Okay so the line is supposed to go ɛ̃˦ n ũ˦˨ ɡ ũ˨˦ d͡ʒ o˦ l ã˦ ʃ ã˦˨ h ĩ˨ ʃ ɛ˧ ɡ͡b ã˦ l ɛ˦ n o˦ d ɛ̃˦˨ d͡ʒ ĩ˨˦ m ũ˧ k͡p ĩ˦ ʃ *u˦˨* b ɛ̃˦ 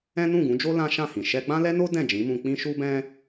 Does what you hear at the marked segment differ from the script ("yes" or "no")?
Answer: yes